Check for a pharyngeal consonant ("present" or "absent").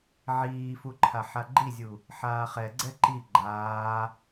present